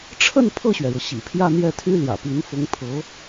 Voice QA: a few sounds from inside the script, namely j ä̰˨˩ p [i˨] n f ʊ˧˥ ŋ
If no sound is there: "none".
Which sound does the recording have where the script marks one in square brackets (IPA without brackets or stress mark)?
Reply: i˧˥